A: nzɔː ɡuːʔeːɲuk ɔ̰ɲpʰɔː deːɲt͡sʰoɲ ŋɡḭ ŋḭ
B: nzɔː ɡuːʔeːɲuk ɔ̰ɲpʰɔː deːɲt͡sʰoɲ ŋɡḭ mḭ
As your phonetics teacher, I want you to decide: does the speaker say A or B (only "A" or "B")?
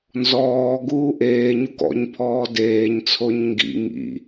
A